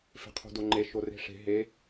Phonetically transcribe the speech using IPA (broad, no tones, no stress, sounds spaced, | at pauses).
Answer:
f e̤ qʰ o̤ d o ŋ͡ǃ e ʃ o r e̤ ʂ e̤ ɦ e